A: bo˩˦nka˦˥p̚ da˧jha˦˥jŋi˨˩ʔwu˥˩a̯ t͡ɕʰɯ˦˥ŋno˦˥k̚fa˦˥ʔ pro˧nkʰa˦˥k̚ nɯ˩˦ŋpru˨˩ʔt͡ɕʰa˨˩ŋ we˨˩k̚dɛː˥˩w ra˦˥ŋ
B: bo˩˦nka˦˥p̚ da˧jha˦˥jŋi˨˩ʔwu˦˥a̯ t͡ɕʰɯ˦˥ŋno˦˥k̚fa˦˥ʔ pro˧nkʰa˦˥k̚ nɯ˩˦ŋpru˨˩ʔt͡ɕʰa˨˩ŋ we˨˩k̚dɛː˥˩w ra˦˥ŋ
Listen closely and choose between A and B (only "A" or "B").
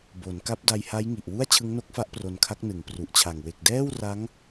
A